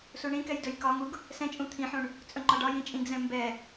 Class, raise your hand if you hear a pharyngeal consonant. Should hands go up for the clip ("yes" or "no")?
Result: yes